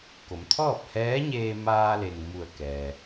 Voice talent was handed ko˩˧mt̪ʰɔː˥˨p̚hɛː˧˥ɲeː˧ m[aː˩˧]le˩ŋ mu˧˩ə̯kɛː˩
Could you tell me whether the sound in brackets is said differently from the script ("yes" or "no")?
yes